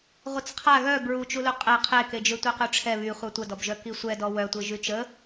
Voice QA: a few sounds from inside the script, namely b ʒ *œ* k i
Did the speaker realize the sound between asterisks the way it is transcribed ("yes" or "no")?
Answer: yes